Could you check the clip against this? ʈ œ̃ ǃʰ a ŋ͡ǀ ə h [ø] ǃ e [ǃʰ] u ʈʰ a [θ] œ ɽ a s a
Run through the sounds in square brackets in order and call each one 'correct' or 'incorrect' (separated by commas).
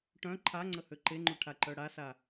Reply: correct, incorrect, incorrect